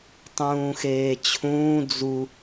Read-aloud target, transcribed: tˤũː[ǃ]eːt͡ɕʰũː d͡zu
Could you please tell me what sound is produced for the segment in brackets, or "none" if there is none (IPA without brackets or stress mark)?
x